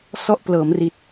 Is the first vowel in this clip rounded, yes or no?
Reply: yes